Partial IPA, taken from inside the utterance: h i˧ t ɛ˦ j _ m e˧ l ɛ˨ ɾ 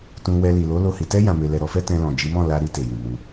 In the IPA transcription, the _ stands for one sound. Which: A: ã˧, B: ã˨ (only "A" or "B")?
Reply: A